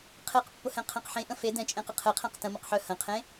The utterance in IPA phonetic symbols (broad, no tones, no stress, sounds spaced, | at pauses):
qʰ e q pː ʊ h ɛ̃ qʰ ẽ q ħ ẽ ʔ ə̃ f e d ɛ̃ t͡ʃʼ ẽ q ə qʰ e qʰ ɛ̃ q t ə̃ m ə q ħ œ h ə̃ qʰ ẽ